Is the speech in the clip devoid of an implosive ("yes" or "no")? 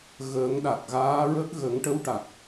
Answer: no